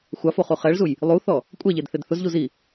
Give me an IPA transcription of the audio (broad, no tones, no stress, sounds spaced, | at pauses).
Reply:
xʷ a f o χ u χ ɛ ɭ z u j | lˠ u θ ɔ | kʷʼ ɛ ʎ e d θ e d θ ʊ z ʎ u z i